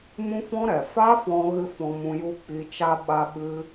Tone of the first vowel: high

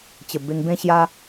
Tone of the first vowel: low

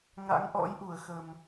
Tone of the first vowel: rising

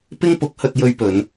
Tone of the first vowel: high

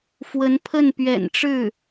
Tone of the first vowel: rising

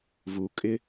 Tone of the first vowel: low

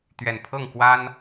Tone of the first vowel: low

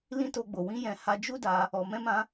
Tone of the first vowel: high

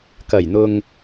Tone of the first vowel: low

